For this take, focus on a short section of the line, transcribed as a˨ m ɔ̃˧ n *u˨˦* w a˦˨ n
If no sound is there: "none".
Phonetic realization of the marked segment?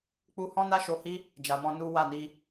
u˦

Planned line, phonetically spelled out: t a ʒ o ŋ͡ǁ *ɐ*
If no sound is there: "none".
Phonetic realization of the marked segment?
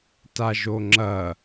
ɐ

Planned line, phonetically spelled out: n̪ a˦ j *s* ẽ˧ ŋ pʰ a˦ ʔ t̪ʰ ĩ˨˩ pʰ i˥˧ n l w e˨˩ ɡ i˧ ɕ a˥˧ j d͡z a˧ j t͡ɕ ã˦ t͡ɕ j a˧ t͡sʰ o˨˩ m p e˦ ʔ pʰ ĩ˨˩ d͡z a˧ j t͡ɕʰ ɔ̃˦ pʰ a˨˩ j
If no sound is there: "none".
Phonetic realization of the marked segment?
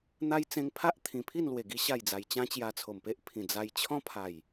t͡s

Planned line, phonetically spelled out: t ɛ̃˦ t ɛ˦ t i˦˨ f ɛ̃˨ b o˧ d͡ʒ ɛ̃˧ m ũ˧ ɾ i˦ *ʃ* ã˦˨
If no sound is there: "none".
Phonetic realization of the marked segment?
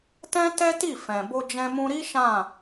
ʃ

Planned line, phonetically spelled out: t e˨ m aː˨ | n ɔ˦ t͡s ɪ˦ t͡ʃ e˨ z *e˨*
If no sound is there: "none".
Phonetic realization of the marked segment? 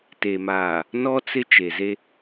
e˦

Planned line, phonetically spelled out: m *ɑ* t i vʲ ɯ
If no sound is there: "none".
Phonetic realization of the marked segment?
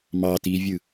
ɑ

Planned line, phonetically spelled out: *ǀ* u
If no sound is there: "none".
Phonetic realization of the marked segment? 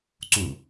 ǀ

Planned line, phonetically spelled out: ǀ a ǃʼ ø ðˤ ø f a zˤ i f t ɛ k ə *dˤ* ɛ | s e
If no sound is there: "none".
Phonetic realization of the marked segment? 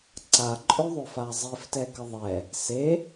ðˤ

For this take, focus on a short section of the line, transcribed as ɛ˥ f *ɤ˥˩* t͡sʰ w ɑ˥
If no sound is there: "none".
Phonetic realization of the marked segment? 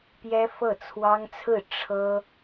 ɤ˥˩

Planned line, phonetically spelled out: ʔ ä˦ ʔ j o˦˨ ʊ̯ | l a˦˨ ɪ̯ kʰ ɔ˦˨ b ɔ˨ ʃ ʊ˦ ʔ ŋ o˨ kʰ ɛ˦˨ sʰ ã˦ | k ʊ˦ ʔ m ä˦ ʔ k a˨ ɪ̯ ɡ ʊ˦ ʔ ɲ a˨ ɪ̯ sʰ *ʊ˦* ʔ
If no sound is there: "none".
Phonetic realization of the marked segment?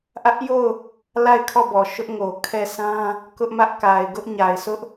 ʊ˦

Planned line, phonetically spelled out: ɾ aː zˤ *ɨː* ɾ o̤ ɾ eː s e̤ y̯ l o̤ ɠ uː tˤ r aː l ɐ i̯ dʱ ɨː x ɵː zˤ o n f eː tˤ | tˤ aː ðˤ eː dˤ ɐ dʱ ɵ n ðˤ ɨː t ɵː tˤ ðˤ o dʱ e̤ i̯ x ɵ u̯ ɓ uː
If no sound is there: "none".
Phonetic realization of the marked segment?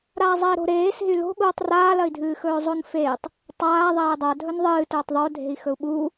eː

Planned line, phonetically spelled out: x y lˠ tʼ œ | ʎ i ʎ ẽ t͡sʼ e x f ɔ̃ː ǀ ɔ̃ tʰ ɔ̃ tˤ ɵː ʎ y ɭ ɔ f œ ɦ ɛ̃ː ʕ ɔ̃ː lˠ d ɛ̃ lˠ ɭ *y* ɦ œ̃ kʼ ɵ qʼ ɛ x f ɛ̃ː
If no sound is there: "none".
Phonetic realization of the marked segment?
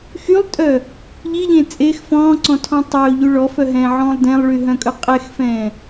y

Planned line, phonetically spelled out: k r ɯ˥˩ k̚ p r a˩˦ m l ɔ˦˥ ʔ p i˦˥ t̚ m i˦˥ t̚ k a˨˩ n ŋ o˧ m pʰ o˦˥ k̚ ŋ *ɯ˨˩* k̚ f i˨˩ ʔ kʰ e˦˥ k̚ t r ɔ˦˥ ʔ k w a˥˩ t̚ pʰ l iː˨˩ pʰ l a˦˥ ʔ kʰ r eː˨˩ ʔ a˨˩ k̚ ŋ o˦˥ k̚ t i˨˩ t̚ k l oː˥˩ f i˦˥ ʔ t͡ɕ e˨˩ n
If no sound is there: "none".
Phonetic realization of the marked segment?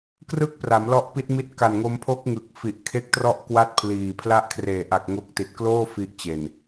ɯ˨˩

